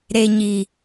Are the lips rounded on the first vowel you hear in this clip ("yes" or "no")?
no